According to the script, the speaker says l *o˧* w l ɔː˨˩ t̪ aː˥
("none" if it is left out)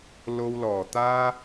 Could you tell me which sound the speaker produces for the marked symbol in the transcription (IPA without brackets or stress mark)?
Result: o˧